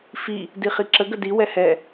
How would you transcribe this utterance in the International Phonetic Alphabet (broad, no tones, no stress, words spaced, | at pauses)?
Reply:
fi | diχiǁə ɡədi wɛhɛ